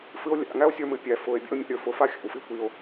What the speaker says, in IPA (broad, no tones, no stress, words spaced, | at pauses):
fɨo̯lʲa̰ŋæo̯sʲə˞ mɨpʲæ fʊe̯ bʲa̰o̯mʲa̰ɾʲə˞fʊ faxʲa̰wfi kʷio̯